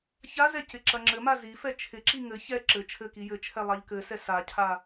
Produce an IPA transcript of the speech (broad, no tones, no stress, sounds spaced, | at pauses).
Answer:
ç a z ɛ c ɪ ǁ ɐ ŋ͡ǁ ɘ m a z i f ɛ t͡ʃʰ ɪ ǁ i ŋ ɘ ç ɛ ǁ ɘ t͡ʃʰ ɘ k i j ɘ t͡ʃʰ ɛ lˠ a ʎ k ɘ s ɛ s a cʰ a